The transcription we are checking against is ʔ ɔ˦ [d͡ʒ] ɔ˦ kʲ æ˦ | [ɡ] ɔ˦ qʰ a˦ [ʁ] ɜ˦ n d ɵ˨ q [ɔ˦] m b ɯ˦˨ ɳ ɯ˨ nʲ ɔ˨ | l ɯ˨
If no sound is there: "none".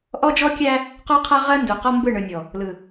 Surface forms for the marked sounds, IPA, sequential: d͡ʒ, q, ʁ, ɔ˦

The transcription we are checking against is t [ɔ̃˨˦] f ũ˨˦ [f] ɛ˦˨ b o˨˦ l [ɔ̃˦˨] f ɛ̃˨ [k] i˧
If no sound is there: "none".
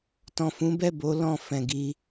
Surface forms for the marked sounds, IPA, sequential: ɔ̃˨, b, ɔ̃˦˨, ɡ

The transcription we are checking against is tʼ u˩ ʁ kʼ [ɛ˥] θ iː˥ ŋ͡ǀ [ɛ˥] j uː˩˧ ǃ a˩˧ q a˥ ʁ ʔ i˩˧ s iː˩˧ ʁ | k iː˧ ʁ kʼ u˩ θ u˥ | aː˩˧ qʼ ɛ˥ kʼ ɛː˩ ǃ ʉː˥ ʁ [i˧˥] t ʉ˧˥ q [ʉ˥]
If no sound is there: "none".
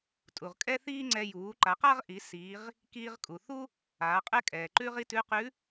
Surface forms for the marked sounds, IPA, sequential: ɛ˥, ɛ˧, i˥, ʉ˧˥

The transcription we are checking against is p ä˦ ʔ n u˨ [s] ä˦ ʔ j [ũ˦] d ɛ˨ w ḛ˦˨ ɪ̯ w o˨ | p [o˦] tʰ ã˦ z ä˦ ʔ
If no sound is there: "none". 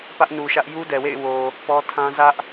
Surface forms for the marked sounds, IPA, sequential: ʃ, u˦, ɔ˦

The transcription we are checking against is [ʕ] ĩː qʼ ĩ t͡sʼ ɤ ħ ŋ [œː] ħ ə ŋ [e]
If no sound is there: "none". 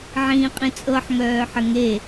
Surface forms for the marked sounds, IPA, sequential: ʕ, œː, e

